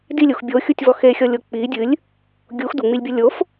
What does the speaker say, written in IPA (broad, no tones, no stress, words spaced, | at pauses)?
dilʲux bʲoxʲutʲvɔ xexʲɔlʲo k͡pi dʲɨlʲ | ɡʲux duŋ͡milʲbʲo lʲof